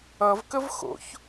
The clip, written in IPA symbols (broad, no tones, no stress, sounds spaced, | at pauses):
ʌ v k ə v x o̰ ç